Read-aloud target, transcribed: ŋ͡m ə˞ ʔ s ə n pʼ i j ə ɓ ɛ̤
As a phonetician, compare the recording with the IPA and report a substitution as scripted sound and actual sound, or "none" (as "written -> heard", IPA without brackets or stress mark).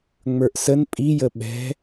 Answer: none